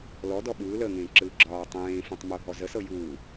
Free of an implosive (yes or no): no